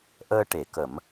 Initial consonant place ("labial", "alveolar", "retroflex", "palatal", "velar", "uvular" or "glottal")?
glottal